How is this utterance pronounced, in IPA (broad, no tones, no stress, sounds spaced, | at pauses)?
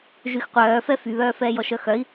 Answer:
ʒ y x qʷ œː f ɛ f y β œː f ɛː j ɔ ʃ œ x œ i̯